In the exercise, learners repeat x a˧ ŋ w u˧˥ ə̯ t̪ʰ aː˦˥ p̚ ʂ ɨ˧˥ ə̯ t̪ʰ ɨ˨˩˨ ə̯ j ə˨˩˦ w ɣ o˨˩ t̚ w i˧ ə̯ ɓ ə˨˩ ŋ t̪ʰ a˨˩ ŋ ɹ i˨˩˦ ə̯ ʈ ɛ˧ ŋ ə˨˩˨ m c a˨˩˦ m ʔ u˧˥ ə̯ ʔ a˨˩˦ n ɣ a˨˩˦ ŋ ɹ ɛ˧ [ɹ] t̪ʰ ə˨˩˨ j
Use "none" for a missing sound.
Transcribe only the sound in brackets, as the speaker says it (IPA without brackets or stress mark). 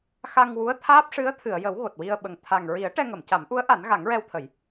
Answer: w